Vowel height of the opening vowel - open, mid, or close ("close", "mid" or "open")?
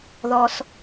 mid